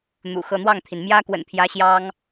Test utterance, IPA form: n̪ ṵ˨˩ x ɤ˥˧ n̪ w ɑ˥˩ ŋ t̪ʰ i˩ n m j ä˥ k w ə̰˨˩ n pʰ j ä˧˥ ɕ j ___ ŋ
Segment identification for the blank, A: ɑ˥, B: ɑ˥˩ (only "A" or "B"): A